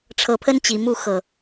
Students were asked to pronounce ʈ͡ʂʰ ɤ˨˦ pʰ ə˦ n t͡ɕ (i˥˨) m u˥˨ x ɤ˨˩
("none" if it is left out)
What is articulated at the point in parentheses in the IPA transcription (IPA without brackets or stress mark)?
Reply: i˨˩